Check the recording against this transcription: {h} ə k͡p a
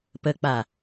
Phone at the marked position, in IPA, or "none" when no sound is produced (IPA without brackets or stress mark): p